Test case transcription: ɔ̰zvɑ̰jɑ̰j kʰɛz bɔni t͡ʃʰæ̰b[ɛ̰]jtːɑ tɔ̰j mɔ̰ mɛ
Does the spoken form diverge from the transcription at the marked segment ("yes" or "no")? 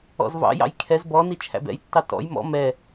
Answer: no